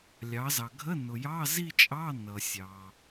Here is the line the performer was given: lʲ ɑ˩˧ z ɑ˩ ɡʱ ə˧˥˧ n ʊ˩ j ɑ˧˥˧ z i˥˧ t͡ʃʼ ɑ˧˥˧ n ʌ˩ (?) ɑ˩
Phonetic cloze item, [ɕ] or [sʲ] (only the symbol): sʲ